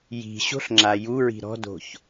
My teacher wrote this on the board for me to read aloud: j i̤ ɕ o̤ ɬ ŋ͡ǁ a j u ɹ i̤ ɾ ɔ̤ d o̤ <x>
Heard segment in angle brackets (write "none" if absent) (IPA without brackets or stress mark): ç